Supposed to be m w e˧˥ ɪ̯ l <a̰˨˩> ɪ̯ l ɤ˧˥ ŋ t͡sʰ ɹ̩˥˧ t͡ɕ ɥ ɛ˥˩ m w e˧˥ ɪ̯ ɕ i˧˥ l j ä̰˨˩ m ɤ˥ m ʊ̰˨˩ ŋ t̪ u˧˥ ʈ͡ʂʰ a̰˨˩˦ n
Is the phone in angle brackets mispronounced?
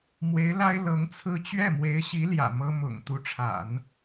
yes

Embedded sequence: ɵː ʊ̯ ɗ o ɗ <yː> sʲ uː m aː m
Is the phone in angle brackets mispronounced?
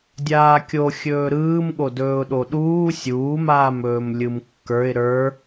yes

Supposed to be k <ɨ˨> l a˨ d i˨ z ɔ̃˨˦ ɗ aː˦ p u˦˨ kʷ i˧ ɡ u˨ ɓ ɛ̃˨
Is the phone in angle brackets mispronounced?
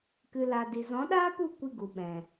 no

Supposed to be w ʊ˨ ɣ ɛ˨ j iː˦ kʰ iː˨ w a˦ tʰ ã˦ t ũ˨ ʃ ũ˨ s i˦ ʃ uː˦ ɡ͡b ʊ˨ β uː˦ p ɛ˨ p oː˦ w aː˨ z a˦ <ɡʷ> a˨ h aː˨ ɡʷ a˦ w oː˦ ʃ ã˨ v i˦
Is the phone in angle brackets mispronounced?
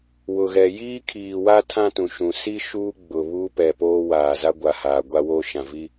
no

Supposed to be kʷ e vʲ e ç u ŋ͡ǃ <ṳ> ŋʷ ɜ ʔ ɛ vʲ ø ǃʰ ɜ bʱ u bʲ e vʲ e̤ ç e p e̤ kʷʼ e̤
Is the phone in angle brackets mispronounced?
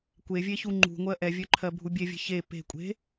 no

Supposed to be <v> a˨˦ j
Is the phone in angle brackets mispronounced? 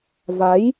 no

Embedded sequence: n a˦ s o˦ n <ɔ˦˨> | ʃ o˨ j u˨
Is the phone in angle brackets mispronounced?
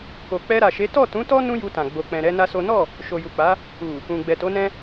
no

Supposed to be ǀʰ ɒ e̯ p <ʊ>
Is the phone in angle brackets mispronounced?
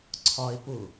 no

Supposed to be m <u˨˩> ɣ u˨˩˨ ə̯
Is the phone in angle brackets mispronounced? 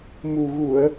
no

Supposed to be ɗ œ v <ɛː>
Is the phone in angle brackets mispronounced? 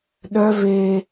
yes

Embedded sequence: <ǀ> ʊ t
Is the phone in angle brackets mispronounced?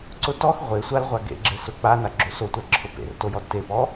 no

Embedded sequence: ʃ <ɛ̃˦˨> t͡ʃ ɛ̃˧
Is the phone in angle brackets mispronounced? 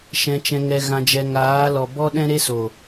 yes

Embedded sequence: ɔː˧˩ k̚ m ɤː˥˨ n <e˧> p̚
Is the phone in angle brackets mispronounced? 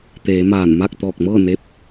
no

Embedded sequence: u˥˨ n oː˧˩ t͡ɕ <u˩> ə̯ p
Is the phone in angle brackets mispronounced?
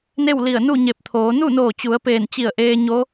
yes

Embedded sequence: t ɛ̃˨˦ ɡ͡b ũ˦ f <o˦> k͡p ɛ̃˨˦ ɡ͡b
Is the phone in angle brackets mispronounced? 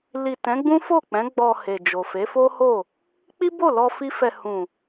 yes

